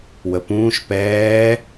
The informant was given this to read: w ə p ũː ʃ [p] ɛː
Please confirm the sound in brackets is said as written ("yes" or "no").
yes